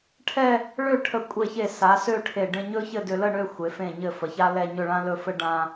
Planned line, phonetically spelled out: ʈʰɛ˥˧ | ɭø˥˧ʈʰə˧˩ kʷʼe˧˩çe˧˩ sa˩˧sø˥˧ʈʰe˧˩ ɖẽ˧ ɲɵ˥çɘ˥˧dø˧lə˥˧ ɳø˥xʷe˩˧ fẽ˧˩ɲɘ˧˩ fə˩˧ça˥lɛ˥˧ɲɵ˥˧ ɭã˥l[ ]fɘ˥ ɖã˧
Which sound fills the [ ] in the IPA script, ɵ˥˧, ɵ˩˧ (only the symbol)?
ɵ˥˧